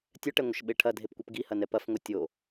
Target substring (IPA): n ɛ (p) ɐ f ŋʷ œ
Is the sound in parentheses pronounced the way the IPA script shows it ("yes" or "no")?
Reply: yes